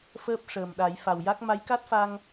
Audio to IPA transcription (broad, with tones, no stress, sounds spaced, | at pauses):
f əː˦˥ p̚ ʂ əː˨˩ m ɗ a˨˩˦ j f a˨˩ w j a˦˥ k̚ m a˧˥ j k a˦˥ t̚ f a˧ ŋ